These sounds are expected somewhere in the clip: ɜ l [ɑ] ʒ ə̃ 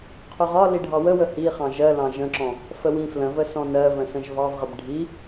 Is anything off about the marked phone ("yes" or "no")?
yes